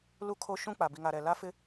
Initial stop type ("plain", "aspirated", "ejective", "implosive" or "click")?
aspirated